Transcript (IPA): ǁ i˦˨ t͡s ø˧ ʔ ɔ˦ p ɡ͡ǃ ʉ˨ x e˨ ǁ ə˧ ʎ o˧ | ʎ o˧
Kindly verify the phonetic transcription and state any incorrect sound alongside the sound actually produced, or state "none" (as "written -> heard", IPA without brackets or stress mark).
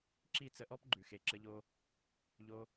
ø˧ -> ə˧